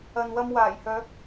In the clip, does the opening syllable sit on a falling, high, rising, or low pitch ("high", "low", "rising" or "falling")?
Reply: low